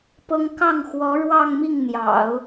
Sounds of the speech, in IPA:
pɤ˥ŋ kɑ˥˩ŋxwɔ˧˥ ɻwɑ˥˧ŋmi˥˩ŋn̪jɑ̰˨˩˦ʊ̯

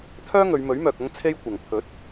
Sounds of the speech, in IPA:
t̪ʰœː˥ŋɵ˨˧ɥmɵ˨˥ɥmœː˨k̚ ɐ˥ŋt͡sʰe˥jkʷɐ˨ŋ pʰɵ˨˥t̚

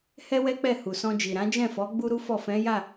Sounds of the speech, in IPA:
hɛ˦wɛ˦k͡pɛ˦˨ hu˨sɔ̃˧d͡ʒi˨ ɾã˨˦d͡ʒɛ̃˦˨fɔ˨˦ ɡ͡bu˦ɾu˦fɔ˦˨ fɛ̃˨˦ja˦˨

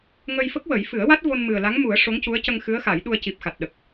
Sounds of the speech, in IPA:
ŋə˧jfə˦˥k̚wə˨˩˦j fɨ˨˩˦ə̯wa˦˥t̚ vo˧nmɨ˨˩ə̯la˧˥ŋmu˨˩˦ə̯ ʂo˧˥ŋcu˧˥ə̯ cə˧ŋ xɨ˧˥ə̯ xa˨˩˦jɗu˧ə̯ ci˨˩p̚xa˨˩t̚ ɗə˨˩k̚

